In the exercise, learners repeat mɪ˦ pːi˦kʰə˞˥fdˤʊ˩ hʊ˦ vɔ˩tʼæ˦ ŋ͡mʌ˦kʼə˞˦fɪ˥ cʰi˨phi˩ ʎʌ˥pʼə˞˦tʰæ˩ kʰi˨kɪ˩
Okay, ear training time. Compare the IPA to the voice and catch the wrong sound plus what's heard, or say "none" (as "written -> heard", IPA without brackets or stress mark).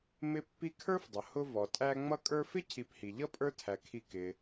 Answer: none